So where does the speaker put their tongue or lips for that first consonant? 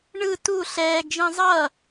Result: retroflex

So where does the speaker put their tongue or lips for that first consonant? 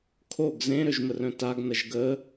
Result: velum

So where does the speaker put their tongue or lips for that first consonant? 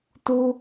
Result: tongue tip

